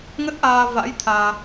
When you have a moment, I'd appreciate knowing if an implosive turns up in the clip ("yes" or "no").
no